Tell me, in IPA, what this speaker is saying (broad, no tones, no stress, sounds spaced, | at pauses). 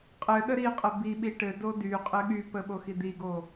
qʼ ɘ ɗ ə ɾ i qʼ ə b i ɓ i ʈ ɘ d o d y qʼ ɘ ɠ y p ə ɓ o x i d̪ i ɡ o